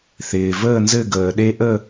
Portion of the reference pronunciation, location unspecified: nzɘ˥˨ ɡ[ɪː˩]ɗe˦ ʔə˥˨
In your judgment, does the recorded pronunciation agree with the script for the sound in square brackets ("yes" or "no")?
no